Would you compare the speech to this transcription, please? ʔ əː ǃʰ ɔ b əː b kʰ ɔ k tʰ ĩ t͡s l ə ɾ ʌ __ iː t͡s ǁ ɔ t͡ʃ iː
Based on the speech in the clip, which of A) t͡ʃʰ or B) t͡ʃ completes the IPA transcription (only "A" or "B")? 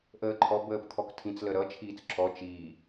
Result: A